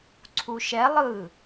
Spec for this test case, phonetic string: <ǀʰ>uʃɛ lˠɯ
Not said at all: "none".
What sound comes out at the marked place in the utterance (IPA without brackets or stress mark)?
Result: ǀʰ